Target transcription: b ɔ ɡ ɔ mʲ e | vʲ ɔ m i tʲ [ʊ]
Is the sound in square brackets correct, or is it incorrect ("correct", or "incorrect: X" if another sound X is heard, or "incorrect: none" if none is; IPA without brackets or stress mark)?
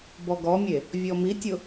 correct